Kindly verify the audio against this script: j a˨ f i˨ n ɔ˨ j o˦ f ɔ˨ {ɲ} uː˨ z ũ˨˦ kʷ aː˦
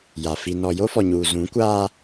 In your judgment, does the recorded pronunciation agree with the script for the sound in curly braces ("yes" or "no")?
yes